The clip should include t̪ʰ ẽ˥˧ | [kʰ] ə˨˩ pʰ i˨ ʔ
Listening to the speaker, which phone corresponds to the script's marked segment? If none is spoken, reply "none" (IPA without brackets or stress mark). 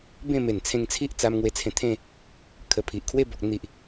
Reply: kʰ